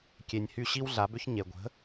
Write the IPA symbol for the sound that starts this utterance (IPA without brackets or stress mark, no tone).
kʲ